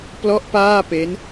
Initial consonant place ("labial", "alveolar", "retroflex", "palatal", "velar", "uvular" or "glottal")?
labial